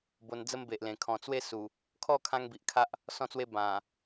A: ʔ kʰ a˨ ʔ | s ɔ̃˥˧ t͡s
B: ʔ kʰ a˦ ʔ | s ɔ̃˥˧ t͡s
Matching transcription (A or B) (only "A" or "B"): B